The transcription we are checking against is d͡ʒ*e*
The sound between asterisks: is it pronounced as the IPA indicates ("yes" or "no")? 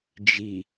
no